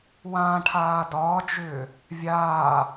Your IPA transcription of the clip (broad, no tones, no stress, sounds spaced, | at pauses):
w ã ʈʰ aː d ɒː d͡ʒ ʏː | vʲ aː